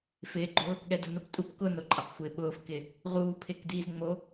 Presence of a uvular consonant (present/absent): present